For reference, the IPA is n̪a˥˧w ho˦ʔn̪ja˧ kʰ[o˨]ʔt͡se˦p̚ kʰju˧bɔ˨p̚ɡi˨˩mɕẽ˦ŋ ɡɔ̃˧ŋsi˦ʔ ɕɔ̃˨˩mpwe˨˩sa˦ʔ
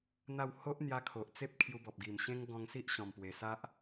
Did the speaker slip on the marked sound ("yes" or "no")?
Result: no